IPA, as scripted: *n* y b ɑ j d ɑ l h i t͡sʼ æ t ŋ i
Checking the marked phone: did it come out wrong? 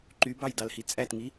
yes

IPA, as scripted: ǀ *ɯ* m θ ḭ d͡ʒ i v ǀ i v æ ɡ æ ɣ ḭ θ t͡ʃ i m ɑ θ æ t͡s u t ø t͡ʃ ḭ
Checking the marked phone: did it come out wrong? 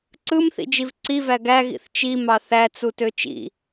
no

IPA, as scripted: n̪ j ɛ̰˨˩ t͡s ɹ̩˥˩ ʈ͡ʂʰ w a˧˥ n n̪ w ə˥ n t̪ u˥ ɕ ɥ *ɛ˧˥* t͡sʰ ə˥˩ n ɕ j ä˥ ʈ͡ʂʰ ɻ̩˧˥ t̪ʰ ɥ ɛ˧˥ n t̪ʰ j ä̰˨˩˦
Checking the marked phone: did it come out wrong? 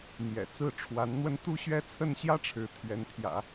yes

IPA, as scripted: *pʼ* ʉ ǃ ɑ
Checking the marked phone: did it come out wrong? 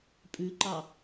no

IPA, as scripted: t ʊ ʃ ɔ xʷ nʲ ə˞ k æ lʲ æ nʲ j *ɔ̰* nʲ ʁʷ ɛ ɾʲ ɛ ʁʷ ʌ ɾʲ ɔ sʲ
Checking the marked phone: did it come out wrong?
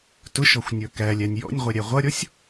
no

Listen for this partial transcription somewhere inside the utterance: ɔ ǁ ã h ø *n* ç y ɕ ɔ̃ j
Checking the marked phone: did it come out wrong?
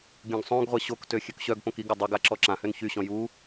no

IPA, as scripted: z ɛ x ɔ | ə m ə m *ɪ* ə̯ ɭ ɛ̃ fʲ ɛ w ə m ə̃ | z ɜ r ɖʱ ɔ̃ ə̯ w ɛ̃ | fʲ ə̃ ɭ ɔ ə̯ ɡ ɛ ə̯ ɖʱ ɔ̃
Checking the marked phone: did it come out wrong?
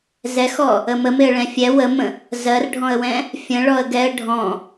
no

